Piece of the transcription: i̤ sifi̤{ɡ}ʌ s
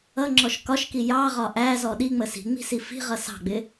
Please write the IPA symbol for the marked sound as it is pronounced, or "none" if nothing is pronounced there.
ʁ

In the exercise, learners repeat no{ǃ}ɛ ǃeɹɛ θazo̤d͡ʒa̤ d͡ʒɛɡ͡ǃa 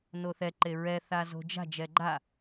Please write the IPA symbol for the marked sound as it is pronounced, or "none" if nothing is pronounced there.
θ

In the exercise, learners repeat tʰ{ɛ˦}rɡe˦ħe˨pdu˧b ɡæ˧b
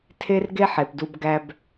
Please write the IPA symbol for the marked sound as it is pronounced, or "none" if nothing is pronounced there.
e˦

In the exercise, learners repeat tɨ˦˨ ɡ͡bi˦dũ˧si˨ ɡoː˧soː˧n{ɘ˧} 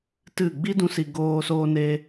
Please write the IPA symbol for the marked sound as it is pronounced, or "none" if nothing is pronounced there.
e˧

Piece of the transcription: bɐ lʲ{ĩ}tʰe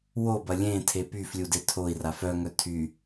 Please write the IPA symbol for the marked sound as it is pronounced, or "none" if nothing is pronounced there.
ẽ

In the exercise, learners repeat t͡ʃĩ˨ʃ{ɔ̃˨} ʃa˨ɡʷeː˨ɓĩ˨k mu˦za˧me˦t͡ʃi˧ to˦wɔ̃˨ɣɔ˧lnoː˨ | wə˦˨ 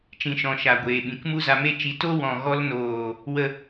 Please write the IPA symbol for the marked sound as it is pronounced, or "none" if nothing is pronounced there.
ɔ̃˨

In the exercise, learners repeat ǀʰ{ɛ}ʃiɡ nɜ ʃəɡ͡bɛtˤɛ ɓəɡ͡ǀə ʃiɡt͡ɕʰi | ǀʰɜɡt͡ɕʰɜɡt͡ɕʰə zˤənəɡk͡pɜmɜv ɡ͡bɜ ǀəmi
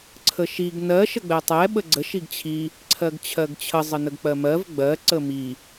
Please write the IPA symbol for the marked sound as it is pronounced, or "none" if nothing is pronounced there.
ə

